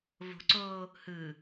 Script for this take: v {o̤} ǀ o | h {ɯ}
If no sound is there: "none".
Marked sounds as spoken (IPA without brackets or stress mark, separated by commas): o̤, ɯ